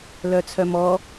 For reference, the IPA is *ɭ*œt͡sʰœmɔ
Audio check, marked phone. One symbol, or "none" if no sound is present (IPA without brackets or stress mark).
l